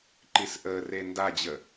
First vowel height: high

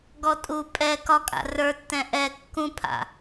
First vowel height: mid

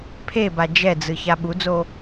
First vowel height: mid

